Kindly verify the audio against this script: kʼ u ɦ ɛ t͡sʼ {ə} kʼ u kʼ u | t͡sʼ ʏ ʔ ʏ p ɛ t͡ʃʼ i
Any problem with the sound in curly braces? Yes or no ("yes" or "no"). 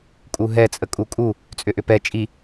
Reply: no